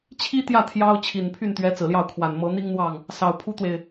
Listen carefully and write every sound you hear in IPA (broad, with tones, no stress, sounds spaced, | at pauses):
t͡ɕʰ i˥ t̪ j ä˥˩ t̪ʰ j ɑ˥ ʊ̯ t͡ɕʰ i˨˩ n pʰ y˥˩ n t̪ ɥ ɛ˧˥ t͡s ɹ̩˨˩ l j ɑ˥˩ ʊ̯ kʰ w a˨˩ n m ɤ˧˥ n̪ i˥ ŋ n̪ w ɑ˥˩ ŋ | s ɑ˨˩ ʊ̯ pʰ u˥ t̪ w e˨ ɪ̯